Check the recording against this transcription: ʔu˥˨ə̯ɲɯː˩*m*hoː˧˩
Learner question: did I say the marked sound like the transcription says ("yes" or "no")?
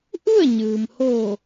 yes